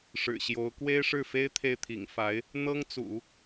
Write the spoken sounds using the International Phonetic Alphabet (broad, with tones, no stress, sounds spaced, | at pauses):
ʂ ɻ̩˨˩ ɕ j o˧˥ ʊ̯ k w e˥ ɪ̯ ʂ ɻ̩˥˩ f e˥ ɪ̯ t̪ʰ e˥˩ ɪ̯ t̪ʰ ḭ˨˩ ŋ f a˧˥ ɪ̯ | n̪ ɤ˥ ŋ t͡s ṵ˨˩˦